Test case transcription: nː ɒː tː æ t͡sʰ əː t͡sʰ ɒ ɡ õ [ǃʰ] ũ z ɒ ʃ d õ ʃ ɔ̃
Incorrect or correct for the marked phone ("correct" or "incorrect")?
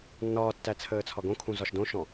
incorrect